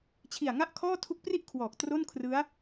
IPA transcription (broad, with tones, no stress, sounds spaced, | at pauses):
t͡ɕʰ i˨˩ a̯ ŋ a˥˩ ʔ kʰ ɔː˥˩ tʰ u˦˥ k̚ p r i˥˩ ʔ kʰ w ɔː˨˩ k̚ t r o˥˩ n kʰ r ɯ˦˥ a̯